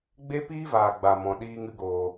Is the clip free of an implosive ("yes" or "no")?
no